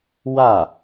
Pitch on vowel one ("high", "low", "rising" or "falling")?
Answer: falling